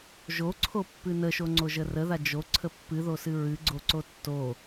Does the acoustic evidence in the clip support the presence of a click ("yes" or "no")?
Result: yes